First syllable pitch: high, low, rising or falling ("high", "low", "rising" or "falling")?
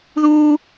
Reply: high